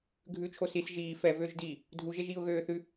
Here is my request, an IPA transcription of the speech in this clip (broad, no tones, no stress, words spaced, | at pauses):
ɡʱʉt͡ʃʰo sis ʒiː fɛvøːʒdiː | dʱuʒeʒiːʊ̯ ɣøːθʉ